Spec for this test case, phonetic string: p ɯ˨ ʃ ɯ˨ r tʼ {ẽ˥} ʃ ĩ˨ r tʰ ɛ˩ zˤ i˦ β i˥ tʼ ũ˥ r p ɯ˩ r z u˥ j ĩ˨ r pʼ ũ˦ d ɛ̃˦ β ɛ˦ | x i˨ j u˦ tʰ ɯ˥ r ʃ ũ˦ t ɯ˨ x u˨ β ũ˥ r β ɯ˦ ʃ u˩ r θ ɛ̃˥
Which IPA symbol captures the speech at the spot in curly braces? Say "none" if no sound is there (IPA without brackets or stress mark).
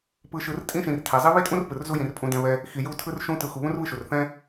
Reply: ĩ˥